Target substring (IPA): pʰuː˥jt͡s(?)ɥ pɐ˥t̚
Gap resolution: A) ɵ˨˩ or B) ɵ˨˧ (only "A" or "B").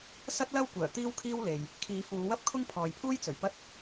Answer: A